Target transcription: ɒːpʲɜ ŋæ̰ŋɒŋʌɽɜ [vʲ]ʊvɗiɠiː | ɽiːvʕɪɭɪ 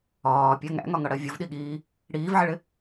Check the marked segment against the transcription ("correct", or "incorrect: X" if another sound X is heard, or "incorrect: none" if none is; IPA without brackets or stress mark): correct